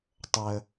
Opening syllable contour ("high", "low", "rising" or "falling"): low